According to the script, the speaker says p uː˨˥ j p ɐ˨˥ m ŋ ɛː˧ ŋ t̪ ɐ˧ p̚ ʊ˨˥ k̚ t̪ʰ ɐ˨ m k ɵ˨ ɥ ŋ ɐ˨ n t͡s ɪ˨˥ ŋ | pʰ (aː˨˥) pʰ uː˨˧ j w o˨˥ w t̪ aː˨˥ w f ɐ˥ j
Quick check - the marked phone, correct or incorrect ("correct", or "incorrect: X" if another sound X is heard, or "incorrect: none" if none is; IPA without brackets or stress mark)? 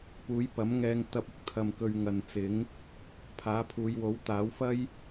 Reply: correct